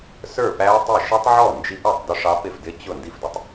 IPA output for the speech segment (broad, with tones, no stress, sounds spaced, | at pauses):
s ə˞˥˩ p æ˦˥ tˤ ɪ˥˩ ʃ ʌ˦˥ tˤ ʕ ɔ˥˩ n d͡ʒ i˦˥ ʔ ʌ˥˩ tˤ d ʊ˦˥ ʂ ɑ˦˥ p ɪ˥˩ f d ɪ˦˥ t͡ɕ ʊ˥˩ n d i˥˩ f d ʊ˦˥ tˤ